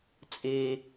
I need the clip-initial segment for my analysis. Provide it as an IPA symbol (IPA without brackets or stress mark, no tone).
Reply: t͡sʼ